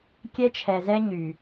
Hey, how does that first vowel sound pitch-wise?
high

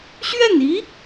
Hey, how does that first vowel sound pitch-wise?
falling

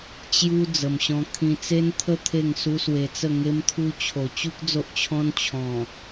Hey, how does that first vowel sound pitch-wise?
high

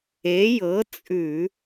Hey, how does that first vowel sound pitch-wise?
rising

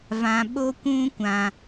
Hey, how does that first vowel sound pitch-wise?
low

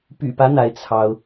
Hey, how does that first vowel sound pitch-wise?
low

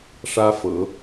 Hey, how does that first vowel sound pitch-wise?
high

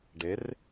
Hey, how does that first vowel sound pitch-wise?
rising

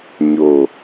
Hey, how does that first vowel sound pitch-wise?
low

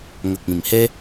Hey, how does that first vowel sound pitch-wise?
low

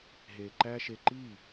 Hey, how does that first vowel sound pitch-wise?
low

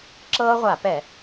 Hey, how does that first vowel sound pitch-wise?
high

